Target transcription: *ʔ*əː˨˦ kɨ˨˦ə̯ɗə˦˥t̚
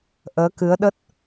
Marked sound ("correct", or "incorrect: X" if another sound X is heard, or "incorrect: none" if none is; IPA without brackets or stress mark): correct